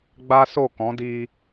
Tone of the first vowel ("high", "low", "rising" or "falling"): high